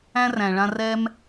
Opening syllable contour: high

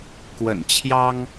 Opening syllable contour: low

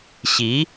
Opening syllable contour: rising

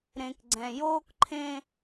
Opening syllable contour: low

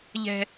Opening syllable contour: high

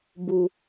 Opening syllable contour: low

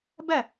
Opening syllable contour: falling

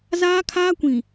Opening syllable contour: high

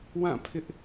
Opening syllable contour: falling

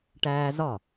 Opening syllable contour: high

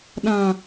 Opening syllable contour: low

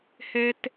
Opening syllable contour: high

